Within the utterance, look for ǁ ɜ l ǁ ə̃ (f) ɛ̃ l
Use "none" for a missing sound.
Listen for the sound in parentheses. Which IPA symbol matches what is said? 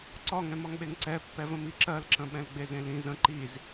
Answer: ɓ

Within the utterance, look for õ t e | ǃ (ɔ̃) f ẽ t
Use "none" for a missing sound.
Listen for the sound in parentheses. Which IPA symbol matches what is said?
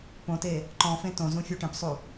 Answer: ɔ̃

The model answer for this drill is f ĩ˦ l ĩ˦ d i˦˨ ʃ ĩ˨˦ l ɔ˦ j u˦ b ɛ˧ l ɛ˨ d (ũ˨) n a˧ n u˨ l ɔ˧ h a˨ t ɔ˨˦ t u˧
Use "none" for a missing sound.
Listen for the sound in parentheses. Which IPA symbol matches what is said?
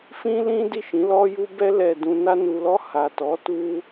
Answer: ũ˨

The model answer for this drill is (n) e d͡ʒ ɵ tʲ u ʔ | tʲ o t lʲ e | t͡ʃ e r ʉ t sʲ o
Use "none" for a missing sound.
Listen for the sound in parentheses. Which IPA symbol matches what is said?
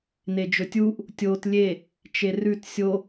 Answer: n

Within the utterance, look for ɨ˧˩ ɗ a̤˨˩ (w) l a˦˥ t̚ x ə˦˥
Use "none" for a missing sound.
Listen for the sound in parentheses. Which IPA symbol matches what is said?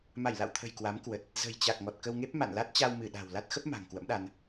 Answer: w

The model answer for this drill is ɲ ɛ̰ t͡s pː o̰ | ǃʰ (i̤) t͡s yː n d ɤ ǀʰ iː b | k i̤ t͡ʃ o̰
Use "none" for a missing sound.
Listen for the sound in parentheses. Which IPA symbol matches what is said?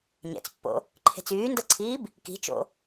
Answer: e̤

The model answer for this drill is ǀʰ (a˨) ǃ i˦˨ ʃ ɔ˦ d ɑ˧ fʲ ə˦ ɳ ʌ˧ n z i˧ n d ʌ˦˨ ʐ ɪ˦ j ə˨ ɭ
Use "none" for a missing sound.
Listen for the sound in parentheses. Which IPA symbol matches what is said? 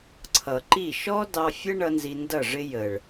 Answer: ʌ˨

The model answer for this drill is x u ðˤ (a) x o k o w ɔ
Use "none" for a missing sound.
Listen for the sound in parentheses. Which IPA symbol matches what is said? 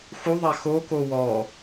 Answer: a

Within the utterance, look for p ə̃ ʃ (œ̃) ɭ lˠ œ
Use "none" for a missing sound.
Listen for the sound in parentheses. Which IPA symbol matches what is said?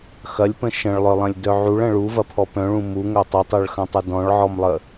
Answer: ə̃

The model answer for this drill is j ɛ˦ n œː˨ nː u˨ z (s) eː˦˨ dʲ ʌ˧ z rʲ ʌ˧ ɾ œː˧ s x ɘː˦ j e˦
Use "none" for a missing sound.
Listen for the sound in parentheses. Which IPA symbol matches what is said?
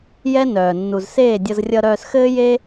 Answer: s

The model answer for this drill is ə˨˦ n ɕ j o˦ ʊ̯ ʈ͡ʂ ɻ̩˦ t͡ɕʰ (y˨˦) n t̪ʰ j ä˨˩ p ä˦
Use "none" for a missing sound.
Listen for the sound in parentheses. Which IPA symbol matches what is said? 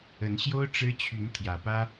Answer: y˨˦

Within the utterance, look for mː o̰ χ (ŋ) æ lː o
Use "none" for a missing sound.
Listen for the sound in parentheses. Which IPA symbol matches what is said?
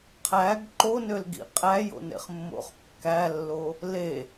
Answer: kː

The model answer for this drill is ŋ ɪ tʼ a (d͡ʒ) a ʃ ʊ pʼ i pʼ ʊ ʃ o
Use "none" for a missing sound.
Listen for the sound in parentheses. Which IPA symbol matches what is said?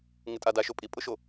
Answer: d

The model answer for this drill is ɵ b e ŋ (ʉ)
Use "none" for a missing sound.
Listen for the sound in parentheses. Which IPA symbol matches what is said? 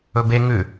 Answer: ʉ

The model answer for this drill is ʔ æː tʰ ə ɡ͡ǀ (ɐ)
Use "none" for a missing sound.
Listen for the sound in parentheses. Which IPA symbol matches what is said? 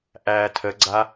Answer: a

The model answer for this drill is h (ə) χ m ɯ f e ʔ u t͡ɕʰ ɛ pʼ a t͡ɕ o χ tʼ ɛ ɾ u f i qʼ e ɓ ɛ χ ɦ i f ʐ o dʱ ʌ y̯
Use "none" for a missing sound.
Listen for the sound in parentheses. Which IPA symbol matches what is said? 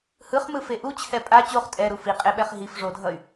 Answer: ɯ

